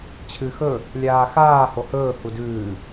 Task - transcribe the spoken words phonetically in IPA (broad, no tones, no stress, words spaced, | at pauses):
t͡ɕʰɨ xɵ | lʲaːxaː hohɵː hudʉː